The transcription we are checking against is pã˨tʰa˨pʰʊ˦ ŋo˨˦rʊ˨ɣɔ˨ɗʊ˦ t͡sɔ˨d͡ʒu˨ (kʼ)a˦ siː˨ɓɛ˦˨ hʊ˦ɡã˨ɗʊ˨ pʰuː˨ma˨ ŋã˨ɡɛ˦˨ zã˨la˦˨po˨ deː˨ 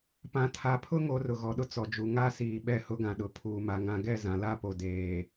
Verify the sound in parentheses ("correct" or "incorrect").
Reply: incorrect